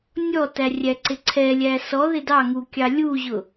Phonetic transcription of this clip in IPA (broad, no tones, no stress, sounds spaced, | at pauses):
nʲ ɔ t æ rʲ æ ǀ ɪ ǀʰ ɛ lʲ æ s ɔ ð ɪ d ɑ ŋ u kʲ ɑ lʲ u ʑ ʊ